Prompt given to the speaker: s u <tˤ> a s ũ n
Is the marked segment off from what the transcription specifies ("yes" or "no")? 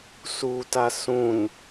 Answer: yes